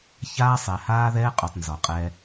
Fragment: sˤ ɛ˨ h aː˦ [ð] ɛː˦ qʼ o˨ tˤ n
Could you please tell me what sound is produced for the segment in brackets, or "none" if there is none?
ð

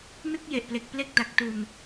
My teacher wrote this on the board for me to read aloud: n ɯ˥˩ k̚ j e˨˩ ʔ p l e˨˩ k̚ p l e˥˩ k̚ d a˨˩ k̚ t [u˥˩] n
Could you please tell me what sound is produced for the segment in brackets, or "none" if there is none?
u˨˩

